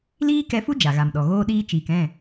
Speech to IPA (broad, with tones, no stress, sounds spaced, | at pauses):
l iː˦ k ɛ˧ f u˦ d͡ʒ a˨ ɣ a˨ m ɗ ɔ˨ ɣ oː˧ ɗ iː˧ t͡ʃ iː˨ k ɛ̃˦˨